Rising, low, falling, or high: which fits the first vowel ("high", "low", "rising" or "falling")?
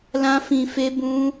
high